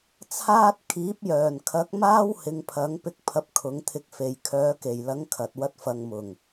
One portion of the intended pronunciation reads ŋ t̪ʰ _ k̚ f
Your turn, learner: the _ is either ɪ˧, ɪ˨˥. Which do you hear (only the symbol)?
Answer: ɪ˧